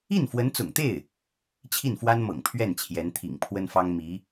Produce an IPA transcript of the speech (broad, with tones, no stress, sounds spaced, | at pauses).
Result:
i˥˩ n f w ə˧˥ n t͡s ʊ̰˨˩ ŋ t̪ e˥˩ ɪ̯ | t͡ɕʰ i˥˩ n f w a˥ n m ɤ̰˨˩ ŋ pʰ ɥ ɛ˥˩ n t͡ɕʰ j ɛ˧˥ n t̪ʰ ḭ˨˩ ŋ pʰ w ə˥ n f ɑ˥ ŋ m i˧˥